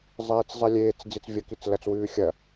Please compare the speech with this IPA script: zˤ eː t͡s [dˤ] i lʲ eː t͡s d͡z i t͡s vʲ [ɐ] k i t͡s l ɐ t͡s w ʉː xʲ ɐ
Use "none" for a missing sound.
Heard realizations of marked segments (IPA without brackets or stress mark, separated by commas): zˤ, ɐ